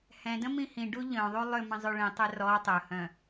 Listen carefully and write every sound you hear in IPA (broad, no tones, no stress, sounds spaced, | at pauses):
h ɛ̃ d ə̃ m ĩ h ĩ ɖ u ʎ œ̃ ðˤ u lˠ ʏ m ə̃ zˤ ø ɭ ĩ tˤ ø r ɔ tˤ ɵ h œ̃